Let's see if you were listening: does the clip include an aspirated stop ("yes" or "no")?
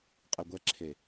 yes